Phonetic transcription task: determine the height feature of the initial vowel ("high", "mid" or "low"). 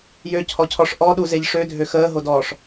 mid